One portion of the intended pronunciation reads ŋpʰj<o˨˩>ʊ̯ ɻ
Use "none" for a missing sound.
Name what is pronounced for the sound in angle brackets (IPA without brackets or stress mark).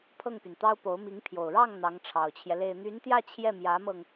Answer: o˨˩